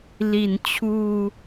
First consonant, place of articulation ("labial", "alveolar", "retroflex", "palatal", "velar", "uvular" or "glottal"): alveolar